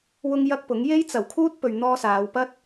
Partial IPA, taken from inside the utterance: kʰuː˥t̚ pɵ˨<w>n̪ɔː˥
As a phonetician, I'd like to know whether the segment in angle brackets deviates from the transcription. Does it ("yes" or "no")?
yes